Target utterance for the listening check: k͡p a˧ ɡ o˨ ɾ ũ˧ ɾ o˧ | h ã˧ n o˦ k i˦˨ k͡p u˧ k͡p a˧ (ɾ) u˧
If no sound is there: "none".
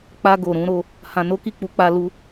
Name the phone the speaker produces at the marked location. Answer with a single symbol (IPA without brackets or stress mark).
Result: l